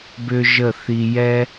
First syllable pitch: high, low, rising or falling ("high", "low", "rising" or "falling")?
high